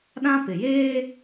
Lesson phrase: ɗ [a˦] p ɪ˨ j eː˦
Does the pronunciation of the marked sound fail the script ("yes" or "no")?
yes